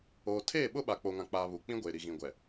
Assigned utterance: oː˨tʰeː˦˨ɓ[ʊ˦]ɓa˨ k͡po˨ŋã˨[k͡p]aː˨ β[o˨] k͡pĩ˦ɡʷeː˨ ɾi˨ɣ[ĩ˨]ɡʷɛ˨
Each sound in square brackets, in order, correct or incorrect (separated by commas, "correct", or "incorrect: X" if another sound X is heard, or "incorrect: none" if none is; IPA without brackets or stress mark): correct, correct, incorrect: u˨, correct